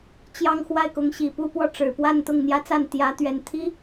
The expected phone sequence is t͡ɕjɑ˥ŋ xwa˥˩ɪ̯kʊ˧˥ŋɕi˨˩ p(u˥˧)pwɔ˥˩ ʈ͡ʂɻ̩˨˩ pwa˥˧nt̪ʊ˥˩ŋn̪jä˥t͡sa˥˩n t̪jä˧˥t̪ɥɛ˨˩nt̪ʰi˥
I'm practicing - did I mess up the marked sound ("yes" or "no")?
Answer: no